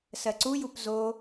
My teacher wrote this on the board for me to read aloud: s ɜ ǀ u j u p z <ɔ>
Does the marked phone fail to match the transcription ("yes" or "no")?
yes